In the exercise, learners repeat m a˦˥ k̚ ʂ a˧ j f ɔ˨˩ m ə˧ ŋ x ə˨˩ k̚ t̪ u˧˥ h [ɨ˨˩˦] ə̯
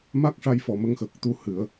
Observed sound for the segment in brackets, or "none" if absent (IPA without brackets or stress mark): ɨ˨˩˦